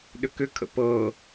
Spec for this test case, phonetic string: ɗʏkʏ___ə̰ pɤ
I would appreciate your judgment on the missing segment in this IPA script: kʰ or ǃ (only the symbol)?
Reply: kʰ